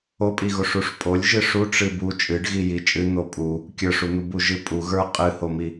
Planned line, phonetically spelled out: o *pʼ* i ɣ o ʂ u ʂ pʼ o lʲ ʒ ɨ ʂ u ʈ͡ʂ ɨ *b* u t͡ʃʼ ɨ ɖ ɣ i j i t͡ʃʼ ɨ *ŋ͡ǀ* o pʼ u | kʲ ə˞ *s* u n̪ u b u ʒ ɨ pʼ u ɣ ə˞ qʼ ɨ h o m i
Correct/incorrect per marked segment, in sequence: correct, correct, incorrect: n̪, incorrect: ʂ

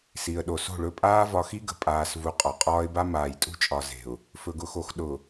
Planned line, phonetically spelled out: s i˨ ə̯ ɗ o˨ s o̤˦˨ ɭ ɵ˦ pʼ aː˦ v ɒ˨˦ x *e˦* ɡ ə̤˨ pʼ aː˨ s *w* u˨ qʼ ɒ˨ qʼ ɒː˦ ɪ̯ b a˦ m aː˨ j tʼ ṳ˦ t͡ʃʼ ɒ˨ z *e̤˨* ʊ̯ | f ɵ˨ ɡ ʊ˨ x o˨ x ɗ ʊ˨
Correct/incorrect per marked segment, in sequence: incorrect: i˦, incorrect: v, correct

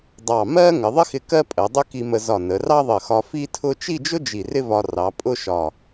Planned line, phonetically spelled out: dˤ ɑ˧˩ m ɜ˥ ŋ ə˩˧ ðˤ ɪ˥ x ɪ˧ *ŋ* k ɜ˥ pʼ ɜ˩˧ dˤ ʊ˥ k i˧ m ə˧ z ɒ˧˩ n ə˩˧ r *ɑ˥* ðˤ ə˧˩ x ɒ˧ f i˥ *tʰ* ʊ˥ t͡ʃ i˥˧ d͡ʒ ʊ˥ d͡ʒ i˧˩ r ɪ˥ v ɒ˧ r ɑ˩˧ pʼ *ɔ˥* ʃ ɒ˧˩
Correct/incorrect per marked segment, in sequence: incorrect: none, correct, correct, incorrect: ʊ˥

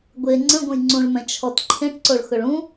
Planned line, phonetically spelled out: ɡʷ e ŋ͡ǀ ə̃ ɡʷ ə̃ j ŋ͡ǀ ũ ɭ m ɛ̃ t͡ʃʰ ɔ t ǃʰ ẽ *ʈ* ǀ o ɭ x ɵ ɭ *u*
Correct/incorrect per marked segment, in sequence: correct, incorrect: ũ

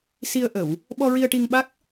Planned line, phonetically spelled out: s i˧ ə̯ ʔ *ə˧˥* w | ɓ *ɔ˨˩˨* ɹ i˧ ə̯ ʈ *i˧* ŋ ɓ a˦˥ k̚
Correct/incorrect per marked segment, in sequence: incorrect: ə˨˩˨, incorrect: ɔ˧, correct

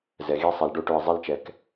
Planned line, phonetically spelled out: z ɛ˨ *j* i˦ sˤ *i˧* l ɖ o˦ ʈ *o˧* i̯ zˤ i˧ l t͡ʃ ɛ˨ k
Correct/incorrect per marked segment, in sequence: incorrect: ɣ, incorrect: i˨, correct

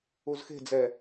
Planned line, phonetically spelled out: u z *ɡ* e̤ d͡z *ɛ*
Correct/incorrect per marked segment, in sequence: incorrect: x, correct

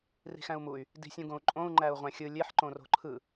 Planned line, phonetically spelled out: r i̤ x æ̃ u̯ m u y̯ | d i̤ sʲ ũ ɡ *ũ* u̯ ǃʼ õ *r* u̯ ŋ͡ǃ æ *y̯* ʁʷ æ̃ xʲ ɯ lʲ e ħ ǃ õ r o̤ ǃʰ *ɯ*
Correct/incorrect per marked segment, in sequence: incorrect: õ, incorrect: none, incorrect: u̯, correct

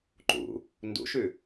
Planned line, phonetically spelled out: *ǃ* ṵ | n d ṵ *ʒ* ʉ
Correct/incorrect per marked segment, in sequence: correct, incorrect: ʃ

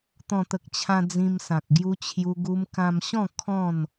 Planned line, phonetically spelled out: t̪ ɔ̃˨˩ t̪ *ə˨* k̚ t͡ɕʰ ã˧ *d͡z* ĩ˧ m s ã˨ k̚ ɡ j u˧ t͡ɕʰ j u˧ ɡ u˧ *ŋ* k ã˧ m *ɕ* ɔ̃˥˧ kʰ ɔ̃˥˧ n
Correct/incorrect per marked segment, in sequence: correct, correct, incorrect: m, correct

